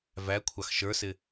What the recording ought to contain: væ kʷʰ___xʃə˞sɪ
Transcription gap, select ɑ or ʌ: ɑ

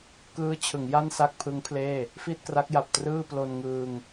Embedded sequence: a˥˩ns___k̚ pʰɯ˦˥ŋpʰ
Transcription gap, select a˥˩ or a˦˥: a˥˩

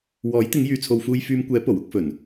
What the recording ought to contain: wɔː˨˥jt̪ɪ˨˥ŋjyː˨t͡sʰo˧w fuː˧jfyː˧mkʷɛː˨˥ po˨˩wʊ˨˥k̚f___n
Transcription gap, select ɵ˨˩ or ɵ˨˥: ɵ˨˩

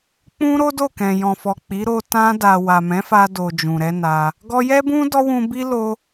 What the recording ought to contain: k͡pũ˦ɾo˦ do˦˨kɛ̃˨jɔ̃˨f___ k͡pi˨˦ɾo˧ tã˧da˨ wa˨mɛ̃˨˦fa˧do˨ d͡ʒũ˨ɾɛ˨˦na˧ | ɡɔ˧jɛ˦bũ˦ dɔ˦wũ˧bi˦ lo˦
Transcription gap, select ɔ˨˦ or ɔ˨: ɔ˨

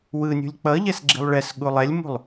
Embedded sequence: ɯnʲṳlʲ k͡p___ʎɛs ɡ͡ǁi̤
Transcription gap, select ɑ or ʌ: ʌ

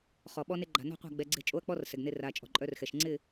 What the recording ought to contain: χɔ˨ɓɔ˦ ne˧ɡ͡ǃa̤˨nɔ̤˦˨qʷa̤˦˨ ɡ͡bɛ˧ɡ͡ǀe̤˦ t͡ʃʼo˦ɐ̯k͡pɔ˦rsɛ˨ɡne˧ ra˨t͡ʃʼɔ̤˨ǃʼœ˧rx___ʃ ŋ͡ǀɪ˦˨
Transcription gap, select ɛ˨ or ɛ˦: ɛ˨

